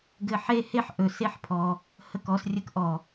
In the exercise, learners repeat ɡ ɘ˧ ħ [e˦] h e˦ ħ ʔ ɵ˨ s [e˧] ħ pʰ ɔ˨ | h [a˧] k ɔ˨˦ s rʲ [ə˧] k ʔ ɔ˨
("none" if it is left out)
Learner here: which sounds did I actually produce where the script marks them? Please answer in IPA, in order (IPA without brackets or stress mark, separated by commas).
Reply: e˦, e˧, ə˧, ə˧